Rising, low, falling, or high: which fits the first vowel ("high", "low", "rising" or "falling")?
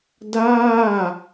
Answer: falling